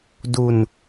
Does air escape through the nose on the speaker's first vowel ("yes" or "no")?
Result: no